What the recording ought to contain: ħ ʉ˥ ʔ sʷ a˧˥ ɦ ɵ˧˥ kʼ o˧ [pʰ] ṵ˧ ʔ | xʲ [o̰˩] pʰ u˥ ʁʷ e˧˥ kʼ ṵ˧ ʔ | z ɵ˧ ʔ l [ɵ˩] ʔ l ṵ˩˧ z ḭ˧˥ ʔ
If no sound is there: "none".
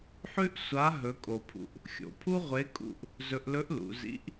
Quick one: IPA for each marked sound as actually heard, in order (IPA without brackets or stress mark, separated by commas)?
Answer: pʰ, o̰˩, ɵ˧˥